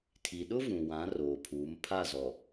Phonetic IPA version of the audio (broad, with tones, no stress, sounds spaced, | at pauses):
tʰ i˨ ɗ ʊ˦ v ũ˨ w ã˨˦ r oː˨ pʰ uː˨˦ m pʰ a˦˨ z ɔ˨